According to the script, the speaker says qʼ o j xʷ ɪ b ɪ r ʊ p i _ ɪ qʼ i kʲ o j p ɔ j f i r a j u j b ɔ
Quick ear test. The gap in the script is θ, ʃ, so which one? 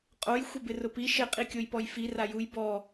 ʃ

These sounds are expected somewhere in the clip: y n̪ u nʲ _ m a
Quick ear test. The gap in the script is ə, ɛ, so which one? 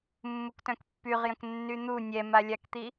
ɛ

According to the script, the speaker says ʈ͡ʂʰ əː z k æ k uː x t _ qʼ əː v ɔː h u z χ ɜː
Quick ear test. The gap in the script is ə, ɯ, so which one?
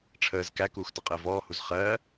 ə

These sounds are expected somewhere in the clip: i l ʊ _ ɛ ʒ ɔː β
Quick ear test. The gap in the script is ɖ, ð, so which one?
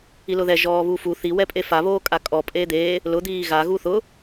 ð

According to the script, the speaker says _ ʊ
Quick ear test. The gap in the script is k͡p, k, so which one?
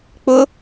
k͡p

